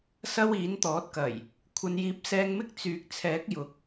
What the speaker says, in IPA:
sɐ˧w iː˨˥nt̪ɔː˨˥t̚kɐ˨˩j | kʷʰɐ˨˧njiː˨˥p̚sɛː˧ŋmɪ˥k̚ t͡syː˨˥k̚t͡sʰɛː˨˥k̚ jʊ˨k̚

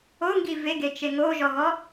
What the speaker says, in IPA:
oŋɡi veɡet͡ʃe ŋoʒɔɣɔ

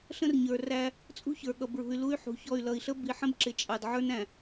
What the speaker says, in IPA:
ɬə̃˦rɲə˞˨ ræ˦ | t͡sʼṳ˦çə˞˨ɠʌ˨bɹṳ˨y̯ lu˦y̯ħṳ˨çɔ˦˨y̯ lʌ˨i̯ɬə˦ bi˨ħə̃˦b ǁɪ˨ t͡ʃʼɑ˨dʕə˞˦n æ̃˨

